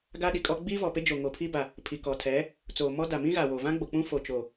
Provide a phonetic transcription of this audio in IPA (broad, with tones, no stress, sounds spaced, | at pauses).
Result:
ɡ a˦ ɗ i˨ kʼ ɔ˦ ɡ͡b iː˦ v ɔ˨ p e˦ d͡ʒ o˨ ŋ o˨ pʰ iː˦ b a˨ | pʰ i˨ k ɔ˨ tʰ ɛ˨˦ | t͡s oː˨ m ɔ˦ d a˨ m ĩ˦ ɣ a˨ w o˨ v ã˦ ɡ͡b o˨ k͡p ũ˦ f o˨ t͡ʃ o˨